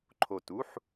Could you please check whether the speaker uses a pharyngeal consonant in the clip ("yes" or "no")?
yes